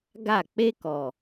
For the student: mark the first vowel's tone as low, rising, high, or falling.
falling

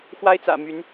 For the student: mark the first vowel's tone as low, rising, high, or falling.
high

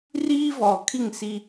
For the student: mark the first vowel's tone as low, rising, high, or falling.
high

